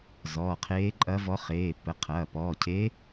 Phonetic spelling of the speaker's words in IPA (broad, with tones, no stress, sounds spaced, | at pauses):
z ɔ˩˧˩ qʰ eː˧˥ ǃʼ ɐ˧˥ v ɔ˧˥ χ eː˩˧˩ p ə˩˧˩ qʰ ɐː˩˧˩ p ɔː˩˧˩ cʰ eː˧˥